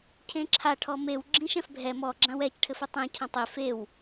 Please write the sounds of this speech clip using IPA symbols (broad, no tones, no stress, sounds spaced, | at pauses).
cʰ ẽ ǁʰ a ʈʰ ɔ m e w ɡ͡ǁ ĩ ʃ ɛ̃ f bʱ ɛ m ɔ ɡ͡ǁ ã w ɛ c ʈʰ ɘ f ɘ tˤ ẽ cʰ ã tˤ e f e w